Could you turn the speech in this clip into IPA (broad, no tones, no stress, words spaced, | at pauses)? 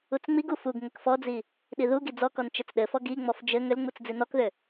ut͡sŋ͡miɡu fuɡ ŋɘkfɔd͡zi | ɗiðuɡi d͡zɔkɔn t͡ʃɘt͡sɗɘfɔ ɡiŋ͡mɔf d͡ʒɘ ŋʏlŋ͡mut͡s d͡zinɔkðʏ